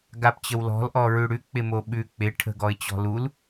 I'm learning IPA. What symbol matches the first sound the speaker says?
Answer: ɡ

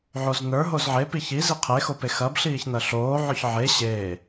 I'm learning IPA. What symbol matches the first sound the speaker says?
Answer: ʕ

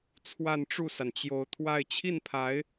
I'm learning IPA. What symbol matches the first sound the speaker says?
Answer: t͡sʰ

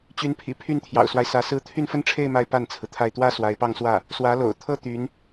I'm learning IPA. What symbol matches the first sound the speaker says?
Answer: t͡ɕ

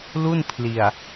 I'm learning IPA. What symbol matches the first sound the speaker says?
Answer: l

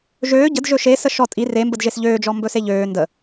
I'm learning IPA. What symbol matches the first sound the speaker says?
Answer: ʒ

